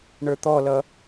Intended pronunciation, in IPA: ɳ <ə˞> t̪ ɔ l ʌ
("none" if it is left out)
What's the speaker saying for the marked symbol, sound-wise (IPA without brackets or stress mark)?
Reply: ə˞